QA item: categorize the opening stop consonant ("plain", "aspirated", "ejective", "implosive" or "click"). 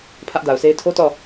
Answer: aspirated